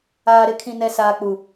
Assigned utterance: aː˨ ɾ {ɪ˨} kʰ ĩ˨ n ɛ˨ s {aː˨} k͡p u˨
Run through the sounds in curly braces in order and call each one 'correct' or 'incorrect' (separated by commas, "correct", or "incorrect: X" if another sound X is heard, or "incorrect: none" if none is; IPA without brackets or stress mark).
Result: correct, correct